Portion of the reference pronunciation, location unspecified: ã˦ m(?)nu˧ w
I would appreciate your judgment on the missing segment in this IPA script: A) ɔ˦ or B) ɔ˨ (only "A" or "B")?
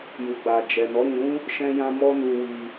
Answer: A